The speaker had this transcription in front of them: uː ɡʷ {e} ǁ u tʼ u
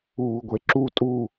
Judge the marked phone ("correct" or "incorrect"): correct